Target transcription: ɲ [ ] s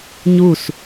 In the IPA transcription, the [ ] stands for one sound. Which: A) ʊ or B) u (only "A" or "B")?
B